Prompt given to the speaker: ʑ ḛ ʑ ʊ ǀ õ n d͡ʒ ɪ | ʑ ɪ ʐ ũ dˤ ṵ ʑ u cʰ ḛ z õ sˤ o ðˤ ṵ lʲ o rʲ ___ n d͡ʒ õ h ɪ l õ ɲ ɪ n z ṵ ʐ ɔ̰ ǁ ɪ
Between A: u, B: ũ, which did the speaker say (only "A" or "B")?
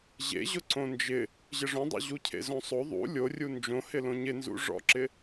A